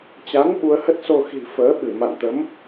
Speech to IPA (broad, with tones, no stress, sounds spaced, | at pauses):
t͡ɕ a˨˦ n ɓ u˨˦ ə̯ h ə˦˥ t̚ s o˧ x i̤˨˩ f əː˨˦ ɓ ɨ˧˩ m a̰˧˨ n t̪ ə˨˦ m